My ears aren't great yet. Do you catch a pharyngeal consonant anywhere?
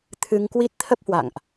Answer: no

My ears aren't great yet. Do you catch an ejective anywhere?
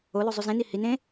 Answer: no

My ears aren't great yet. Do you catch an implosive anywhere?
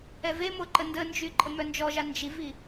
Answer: no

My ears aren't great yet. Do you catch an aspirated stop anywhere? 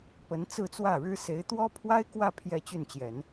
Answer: yes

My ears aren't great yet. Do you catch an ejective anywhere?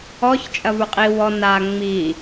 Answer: yes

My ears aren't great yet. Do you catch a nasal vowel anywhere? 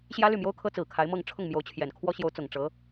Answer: no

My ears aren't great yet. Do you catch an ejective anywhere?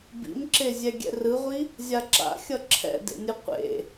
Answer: no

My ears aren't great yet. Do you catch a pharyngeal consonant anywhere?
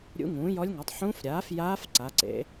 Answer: yes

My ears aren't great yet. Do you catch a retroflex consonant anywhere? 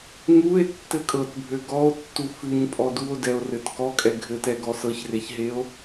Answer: no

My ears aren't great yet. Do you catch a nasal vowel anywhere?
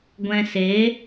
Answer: yes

